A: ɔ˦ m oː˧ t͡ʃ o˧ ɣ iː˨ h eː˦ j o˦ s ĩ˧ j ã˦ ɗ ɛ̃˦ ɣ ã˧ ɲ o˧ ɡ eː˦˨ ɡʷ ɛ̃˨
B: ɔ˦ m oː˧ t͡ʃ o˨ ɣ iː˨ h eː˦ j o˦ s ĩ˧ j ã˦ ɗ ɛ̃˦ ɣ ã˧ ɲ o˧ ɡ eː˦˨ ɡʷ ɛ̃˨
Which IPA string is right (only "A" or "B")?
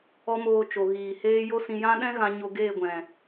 B